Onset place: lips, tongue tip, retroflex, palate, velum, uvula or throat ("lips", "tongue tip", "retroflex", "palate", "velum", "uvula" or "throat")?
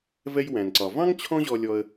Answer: lips